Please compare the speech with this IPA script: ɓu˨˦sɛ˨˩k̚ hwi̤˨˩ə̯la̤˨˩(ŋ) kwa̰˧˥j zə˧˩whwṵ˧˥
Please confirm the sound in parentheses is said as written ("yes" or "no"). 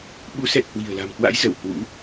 no